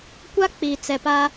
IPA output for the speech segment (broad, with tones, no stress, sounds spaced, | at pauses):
kʷ a˦ k͡p i˨ t͡s ɛ˨ p a˦